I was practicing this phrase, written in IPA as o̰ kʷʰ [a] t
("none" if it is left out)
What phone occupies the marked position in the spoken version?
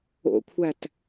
æ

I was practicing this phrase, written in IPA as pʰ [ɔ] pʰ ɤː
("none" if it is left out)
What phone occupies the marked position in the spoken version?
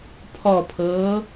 ɔ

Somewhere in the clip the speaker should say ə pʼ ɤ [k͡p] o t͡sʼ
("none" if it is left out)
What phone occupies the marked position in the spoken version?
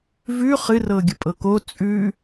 k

